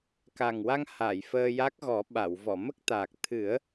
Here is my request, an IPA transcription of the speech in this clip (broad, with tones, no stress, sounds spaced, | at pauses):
k a˨˩ ŋ w a˧ ŋ h a˨˩˨ j f əː˧ j a˦˥ k̚ ɣ ɔ˨˩˦ ɓ a˨˩˨ w v ɔ˨˩˨ m ə˦˥ k̚ t̪ aː˨˩ k̚ t̪ʰ ɨ˨˩˦ ə̯